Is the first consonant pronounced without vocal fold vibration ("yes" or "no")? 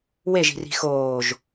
no